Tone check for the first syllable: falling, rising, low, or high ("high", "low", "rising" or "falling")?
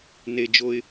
high